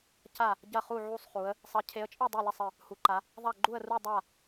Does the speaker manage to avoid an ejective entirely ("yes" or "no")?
no